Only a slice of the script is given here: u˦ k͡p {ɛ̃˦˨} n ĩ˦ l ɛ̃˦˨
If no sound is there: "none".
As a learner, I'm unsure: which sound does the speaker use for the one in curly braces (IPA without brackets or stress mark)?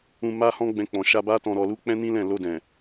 ɛ̃˦